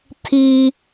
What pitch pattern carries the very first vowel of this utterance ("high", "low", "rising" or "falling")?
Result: high